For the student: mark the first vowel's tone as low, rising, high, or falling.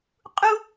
high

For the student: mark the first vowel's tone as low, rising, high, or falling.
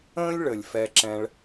high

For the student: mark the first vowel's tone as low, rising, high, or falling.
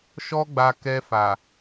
high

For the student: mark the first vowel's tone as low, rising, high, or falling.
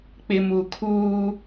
low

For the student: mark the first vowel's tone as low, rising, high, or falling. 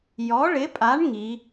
rising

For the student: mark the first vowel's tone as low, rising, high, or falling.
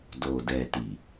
low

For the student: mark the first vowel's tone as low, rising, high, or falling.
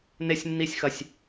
high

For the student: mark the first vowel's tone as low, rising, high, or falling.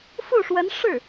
falling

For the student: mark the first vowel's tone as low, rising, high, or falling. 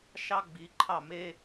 high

